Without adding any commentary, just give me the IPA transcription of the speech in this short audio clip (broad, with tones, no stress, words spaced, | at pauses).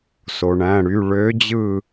so˩ɳæ̃˩˧˩ɽy˩˧˩ ɭø˨˦d͡ʑɯ˧˩